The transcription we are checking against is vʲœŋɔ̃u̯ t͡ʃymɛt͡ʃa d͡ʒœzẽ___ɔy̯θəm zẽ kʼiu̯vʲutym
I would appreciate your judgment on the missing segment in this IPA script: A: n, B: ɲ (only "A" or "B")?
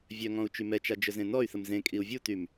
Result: A